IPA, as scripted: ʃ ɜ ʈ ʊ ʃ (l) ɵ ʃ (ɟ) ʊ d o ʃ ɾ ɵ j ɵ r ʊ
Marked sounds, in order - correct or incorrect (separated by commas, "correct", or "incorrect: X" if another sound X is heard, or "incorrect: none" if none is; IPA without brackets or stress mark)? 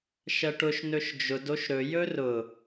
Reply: incorrect: n, incorrect: d͡ʒ